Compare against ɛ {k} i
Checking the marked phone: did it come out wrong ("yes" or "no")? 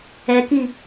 no